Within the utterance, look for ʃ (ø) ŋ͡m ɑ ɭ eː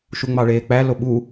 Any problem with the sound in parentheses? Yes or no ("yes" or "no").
yes